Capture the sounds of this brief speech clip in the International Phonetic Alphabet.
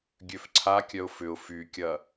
ɡʲøfǀʰakʲœʊ̯ fʏʊ̯ fykʲɐ

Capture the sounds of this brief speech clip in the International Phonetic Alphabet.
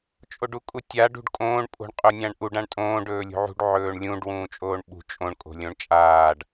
t͡ʃʼoɖukʼutʲa ɖṳɖkʼõːɳ pʼo̤ɳqʼonʲãɳʔuɖ ãɳtʼõːɖ ɵːlʲṳʕṳɖ ʕɵːɳlʲũɖ wũːt͡ʃʼoːɳɓṳ t͡ʃʼõɳ kʼo̤lʲõɳt͡ʃʼaːɖ

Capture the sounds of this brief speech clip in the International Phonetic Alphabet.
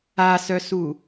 asœsu

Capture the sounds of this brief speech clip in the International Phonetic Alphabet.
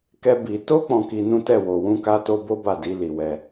kɛ˦bi˧ to˦ k͡pɔ̃˧ki˧ nũ˦tɛ˦˨ wo˧ wũ˧ka˧to˧ bo˦ba˦˨ di˧ li˧wɛ˧

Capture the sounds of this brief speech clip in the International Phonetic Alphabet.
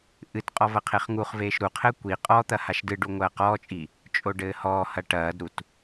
ʔɨtqʼɔ vɐqʰeχŋuχveːʃ ɾuqʰɘː kʷi qʼɔ t̪ɐhaʃdɨɖu ŋʷɐːqɔːt͡ʃʼi | t͡ʃʼoɖɘːhɔːhɐ ʈɐːdɾut

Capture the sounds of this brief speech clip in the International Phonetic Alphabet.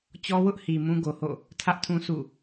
t͡ɕɔ˦wʊ˦ʔhi˨ mũ˦ɡo˨ho̰˦˨ | tʰä˦ʔtʰũ˦ sṵ˦˨

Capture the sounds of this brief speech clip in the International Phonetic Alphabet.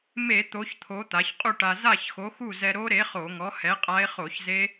me˧˩˧ t̪o˩˧çt̪ʰo˩˧ t̪a˩˧çqʼu˥˨ʈa˧ za˥˨çxo˨˥ xu˥˨zɛ˧ ɾo˦˥ɾe˨˥ χo˧˩˧ŋɔ˨˥ hɛ˨˥qʼa˦˥e̯χo˧˩˧çze˦˥

